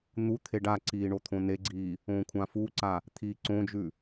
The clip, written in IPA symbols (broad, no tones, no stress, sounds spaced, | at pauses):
n̪ u t̪ʰ e ɖ a ǀ iː ɳ o t̪ʰ õ n e ɡ͡ǀ iː | õː kʷʰ ã f u ǀ a | t̪ʰ iː ǀ õ d͡ʒ ʉ